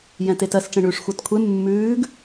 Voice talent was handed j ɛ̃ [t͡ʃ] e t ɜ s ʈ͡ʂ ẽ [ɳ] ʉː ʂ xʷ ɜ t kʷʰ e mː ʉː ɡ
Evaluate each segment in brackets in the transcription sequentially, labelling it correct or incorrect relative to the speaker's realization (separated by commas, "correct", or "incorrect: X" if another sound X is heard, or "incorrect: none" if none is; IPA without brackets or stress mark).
incorrect: t, correct